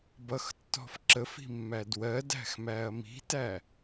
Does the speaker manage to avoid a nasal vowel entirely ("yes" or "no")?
yes